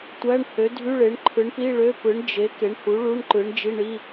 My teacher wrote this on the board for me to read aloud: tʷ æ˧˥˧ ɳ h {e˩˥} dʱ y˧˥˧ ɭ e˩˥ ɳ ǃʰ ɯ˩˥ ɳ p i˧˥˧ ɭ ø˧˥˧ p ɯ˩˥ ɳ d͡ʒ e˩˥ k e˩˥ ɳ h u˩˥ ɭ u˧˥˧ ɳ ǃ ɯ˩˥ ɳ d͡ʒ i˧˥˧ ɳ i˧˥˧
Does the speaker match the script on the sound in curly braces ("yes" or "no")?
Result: no